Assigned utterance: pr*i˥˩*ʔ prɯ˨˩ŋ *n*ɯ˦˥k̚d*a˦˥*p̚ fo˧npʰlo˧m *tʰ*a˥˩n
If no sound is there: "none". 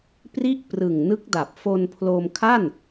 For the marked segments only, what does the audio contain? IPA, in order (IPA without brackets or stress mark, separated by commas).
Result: i˥˩, n, a˨˩, kʰ